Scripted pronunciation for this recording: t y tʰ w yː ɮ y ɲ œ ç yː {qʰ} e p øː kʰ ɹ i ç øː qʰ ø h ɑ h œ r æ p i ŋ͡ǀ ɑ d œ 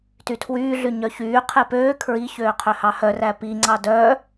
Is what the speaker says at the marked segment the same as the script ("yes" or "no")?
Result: yes